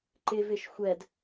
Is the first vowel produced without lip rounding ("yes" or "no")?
yes